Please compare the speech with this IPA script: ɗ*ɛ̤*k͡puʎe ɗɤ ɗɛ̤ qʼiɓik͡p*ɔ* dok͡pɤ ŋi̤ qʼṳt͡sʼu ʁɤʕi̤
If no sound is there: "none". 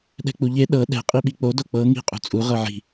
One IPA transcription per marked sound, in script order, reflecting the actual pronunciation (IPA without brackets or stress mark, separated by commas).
ɛ̤, o